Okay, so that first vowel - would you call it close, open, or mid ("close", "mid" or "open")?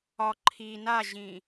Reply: open